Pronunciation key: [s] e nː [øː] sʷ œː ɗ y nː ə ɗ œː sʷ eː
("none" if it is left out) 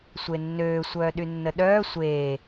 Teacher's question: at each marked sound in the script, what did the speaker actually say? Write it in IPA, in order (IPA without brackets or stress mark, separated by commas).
sʷ, øː